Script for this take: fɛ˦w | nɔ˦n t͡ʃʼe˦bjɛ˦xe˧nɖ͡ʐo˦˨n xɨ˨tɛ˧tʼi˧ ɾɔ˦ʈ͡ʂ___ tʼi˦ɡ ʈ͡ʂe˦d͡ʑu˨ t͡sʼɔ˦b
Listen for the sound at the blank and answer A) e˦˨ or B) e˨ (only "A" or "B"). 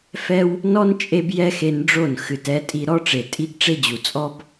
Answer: B